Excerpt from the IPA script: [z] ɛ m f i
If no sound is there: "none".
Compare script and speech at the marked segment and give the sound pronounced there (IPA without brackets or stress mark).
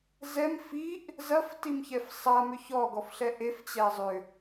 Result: z